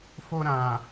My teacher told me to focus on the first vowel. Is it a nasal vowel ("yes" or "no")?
no